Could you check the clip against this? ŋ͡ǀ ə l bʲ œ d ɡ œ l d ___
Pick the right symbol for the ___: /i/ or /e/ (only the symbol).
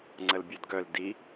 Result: i